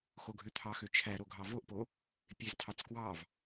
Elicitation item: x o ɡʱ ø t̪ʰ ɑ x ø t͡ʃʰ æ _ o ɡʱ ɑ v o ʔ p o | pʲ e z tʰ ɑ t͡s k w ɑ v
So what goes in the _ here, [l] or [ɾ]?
ɾ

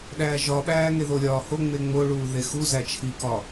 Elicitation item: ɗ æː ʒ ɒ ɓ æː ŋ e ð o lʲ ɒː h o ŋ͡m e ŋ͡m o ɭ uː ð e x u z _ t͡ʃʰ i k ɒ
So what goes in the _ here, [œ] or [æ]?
æ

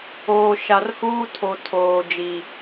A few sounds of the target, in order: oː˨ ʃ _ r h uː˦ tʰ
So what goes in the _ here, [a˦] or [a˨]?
a˨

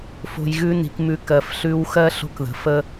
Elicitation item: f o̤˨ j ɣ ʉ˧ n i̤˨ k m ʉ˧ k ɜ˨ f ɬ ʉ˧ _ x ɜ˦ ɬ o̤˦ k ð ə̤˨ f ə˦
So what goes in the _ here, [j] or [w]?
w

